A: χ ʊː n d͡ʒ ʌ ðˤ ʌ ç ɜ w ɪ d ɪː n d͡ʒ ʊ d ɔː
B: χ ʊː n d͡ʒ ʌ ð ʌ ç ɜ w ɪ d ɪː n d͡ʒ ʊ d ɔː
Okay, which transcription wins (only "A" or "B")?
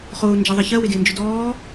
A